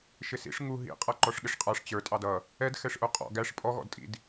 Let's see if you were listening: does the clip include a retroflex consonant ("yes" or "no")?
yes